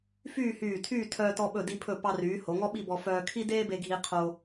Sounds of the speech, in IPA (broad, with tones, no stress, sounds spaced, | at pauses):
f yː˥˧ h yː˧˩ tʰ yː˥˧ tʰ œː˧ t ɔ˧ ɓ ɵ˧˩ d i˧ pʰ ɵ˧˩ p ɑ˧ r yː˩˧ h o˩˧ ŋ ɔ˥ ɓ i˥˧ b ɔ˧ f œː˧ kʰ i˥ d eː˥ b e˧ ɡʱ i˧ qʰ o˧